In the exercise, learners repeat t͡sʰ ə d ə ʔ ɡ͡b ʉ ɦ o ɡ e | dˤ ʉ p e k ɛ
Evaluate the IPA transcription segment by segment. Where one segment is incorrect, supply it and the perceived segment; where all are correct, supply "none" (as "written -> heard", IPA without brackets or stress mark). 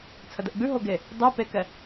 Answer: none